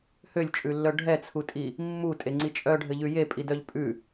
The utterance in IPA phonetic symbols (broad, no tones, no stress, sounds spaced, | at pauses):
h ø lʲ t͡ʃʼ ʉ lː œ ɖʱ ɛ t͡sʰ u tʼ i | mː u tʼ e ŋ͡ǀ i t͡ʃʼ œ ɖʱ ɘ ʎ ʉ j e pʼ i d œ ʎ pʼ ʉ